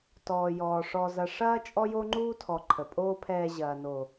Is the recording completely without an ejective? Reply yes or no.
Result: no